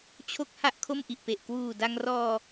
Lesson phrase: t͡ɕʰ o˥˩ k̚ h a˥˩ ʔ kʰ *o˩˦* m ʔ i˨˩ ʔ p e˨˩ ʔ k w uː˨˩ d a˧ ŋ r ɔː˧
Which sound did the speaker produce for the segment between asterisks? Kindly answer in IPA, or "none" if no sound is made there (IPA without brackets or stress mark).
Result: o˥˩